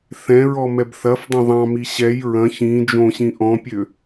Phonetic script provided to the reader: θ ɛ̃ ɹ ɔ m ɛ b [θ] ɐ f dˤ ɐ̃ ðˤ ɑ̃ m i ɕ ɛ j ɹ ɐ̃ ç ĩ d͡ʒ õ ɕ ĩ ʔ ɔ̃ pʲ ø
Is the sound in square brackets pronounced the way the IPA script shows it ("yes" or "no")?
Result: yes